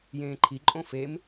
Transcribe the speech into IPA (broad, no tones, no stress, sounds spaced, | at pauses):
j ẽː ǃʰ i ǃʼ õ f e m